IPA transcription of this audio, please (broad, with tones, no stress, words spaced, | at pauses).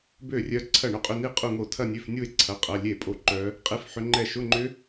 bø˥˩rʲœ˦˥ ǀʰɐ˥˩ɳʊ˥˧qʼʏ˧˥˧ni˥˧ qʼu˥˧ŋo˥˩ tʰɐ˥˧nʲø˧˥˧fnʲu˥˧e̯ ǀʰɐ˧˥˧qʼɐ˧˥˧ lʲe˥˩pʼo˥˩ ǃœ˦˥ | qʼe˦˥fħʏ˦˥ŋ͡ǃɛ˥˧ ʃʊ˧˥˧ŋ͡ǃʏ˦˥